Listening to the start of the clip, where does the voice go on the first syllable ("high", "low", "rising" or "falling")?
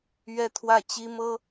high